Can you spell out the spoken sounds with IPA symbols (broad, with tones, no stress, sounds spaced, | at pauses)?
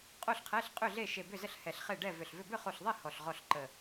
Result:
qʼ o˥˨ ɬ qʰ ɛ˧˥˧ ɬ qʼ ʏ˥˨ ɮ e˥˨ ʃ e˧˩ b ʏ˥˨ z ə˥˨ ɬ h ɛ˧˩ ɬ χ e˥˨ ɖ ɛ˥˨ v ʏ˧˩ ɬ v ʏ˥˨ b ʏ˥˨ χ o˧˩ ɬ ðˤ e˥˨ h ɔ˧˩ ɬ ʁ ɔ˥˨ ɬ ǃ ə˧˩